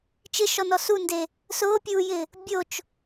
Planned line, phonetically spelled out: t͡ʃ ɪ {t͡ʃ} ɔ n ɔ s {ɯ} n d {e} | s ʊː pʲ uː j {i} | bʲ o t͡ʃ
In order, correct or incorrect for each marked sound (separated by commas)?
incorrect, incorrect, correct, incorrect